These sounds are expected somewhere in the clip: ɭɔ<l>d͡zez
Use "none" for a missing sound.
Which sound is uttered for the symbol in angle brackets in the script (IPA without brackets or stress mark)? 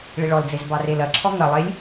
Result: l